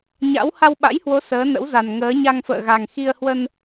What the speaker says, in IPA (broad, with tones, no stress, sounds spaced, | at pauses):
ɲ a̰˧˥ w h a˧ w ɓ a̰˧˥ j h w o˨˦ s əː˨˦ n ə̰˧˥ w z a˨˩ n ŋ əː˨˦ ɲ a˧ ŋ f ə̰ː˧˨ ɣ a˨˩ ŋ x i˧ ə̯ h w ə˧ n